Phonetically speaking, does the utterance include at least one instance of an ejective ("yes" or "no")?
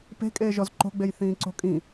yes